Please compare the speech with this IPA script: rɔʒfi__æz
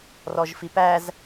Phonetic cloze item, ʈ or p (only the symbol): p